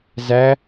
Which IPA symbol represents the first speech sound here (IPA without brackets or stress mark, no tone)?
z